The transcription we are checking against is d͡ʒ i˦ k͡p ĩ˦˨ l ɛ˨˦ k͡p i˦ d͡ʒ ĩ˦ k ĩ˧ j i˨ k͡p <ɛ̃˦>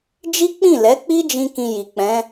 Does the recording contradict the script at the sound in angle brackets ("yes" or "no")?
yes